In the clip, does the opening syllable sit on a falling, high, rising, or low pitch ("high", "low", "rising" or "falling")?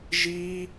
high